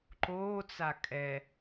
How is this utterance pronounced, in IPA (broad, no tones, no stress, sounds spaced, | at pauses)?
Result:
ǃ oː t͡s a kʼ ɛ